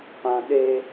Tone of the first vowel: high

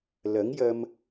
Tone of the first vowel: rising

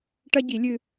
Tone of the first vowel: high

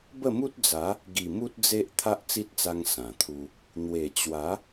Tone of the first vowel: falling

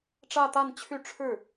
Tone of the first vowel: falling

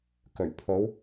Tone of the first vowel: low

